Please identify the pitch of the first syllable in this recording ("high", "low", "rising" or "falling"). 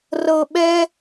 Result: high